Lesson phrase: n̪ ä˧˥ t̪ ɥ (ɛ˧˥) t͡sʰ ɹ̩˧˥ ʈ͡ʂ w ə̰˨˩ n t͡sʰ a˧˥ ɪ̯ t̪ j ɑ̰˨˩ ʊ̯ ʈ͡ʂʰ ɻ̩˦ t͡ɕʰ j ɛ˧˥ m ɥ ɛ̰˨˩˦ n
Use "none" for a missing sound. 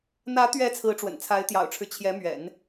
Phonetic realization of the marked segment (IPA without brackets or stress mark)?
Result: ɛ˧˥